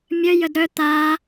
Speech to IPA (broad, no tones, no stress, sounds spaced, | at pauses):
mʲ œ j ə d ɾ œ t̪ a